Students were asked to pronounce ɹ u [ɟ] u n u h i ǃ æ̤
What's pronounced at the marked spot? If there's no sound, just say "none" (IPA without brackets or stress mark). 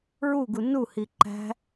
ɡ